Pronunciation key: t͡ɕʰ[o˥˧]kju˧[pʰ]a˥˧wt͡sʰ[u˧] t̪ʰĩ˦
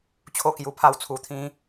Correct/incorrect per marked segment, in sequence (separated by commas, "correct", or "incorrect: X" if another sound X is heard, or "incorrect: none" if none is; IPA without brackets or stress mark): correct, correct, correct